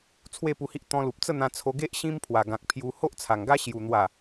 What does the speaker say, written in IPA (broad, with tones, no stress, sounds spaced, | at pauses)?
t͡sʰ w e˥˧ p u˧ h i˦ ʔ t̪ ɔ̃˧ l u˨ p̚ t͡s ə˥˧ n̪ ã˧ t͡sʰ o˧ ɡ e˦ ʔ ɕ ĩ˦ m pʰ w a˨˩ ɡ ã˨ k̚ pʰ j u˧ h o˦ ʔ t͡sʰ a˨˩ ŋ ɡ a˦ ɕ j u˨˩ n̪ w a˨˩